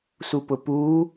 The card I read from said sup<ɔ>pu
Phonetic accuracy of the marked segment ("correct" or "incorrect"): incorrect